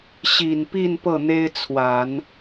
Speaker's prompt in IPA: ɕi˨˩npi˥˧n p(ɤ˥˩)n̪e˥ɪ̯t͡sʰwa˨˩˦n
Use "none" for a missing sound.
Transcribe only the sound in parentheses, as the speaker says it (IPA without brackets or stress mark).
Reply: ɤ˥˩